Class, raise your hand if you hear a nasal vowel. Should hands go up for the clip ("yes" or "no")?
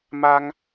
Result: no